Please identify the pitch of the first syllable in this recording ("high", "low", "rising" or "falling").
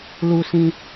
low